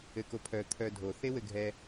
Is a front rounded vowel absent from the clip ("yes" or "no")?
no